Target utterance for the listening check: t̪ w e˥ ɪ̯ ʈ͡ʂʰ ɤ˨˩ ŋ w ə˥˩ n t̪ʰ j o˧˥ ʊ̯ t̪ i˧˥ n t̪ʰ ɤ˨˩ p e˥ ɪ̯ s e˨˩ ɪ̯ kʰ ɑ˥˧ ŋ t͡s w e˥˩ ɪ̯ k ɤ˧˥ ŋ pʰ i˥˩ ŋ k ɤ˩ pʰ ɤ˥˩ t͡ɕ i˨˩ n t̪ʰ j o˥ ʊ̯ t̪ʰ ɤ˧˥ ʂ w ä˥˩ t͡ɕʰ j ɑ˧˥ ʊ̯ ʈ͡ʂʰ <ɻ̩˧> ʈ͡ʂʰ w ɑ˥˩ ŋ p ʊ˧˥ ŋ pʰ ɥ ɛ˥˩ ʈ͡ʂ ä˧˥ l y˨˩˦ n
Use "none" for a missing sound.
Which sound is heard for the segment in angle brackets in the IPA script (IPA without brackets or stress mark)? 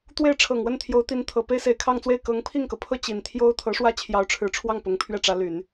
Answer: ɻ̩˨˩